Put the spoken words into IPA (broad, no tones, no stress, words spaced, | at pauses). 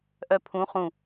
ʔœpʰũ χũ